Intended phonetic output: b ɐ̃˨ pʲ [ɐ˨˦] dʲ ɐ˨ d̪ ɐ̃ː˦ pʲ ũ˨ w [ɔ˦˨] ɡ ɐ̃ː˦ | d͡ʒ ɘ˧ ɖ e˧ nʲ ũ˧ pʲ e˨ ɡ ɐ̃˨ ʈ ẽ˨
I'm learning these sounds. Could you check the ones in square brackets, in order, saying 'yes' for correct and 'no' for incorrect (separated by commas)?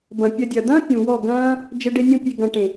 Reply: no, yes